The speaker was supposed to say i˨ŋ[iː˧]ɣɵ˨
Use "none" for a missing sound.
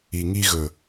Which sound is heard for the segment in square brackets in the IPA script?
i˧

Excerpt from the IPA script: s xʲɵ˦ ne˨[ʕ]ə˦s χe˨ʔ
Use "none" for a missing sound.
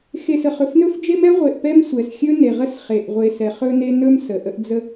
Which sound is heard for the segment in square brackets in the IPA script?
ʁ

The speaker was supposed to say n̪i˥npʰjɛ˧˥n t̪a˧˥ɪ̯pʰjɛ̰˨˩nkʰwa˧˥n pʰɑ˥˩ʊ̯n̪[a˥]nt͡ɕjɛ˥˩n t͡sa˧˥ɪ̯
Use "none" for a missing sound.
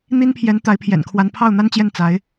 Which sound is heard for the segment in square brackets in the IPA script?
a˥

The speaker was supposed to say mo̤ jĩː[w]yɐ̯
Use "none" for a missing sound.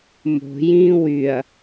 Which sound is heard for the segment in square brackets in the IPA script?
w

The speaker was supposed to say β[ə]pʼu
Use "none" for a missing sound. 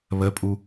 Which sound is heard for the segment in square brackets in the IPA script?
ə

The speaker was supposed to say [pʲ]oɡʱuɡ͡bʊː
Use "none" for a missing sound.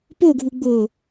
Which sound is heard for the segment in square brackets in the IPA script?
p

